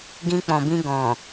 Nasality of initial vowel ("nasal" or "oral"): nasal